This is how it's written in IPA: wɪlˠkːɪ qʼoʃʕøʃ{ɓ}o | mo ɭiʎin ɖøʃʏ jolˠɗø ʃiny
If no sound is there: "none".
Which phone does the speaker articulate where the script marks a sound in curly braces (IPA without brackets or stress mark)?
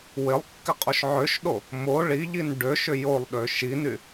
ɗ